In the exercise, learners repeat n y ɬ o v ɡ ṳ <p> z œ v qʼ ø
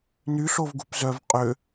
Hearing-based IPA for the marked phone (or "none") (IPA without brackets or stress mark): p